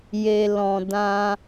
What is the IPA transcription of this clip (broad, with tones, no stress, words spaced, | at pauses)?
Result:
je˨lɔ̃˨ dã˧